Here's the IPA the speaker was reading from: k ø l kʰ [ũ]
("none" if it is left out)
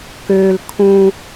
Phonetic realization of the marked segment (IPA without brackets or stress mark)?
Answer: ũ